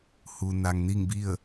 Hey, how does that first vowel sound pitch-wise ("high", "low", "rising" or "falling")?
low